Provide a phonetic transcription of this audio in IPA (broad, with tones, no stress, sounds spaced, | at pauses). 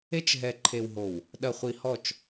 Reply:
e˦ t͡ʃ ɦ ɛ˨ ǃʰ e˨ w ɦ o˨ w | ɗ ɐ˨ χʷ i˨ h ɔ˦˨ t͡ʃ